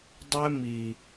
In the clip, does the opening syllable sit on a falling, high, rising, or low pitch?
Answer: high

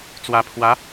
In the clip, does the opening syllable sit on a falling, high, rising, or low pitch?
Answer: low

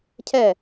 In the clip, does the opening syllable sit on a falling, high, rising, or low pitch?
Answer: falling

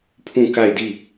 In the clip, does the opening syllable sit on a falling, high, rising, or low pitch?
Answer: falling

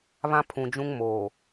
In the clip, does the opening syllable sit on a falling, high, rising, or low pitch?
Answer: high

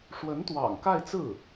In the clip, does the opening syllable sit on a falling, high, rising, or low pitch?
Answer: rising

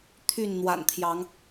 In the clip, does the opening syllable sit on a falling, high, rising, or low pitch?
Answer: falling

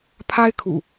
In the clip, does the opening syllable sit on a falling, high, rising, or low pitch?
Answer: high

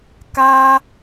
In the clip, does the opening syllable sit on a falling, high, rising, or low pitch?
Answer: high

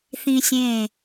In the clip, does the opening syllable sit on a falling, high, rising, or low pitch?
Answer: high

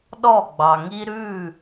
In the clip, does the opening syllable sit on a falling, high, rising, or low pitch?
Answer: falling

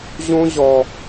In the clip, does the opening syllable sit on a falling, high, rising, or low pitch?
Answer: high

